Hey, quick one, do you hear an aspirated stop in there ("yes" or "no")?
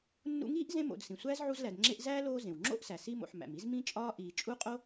no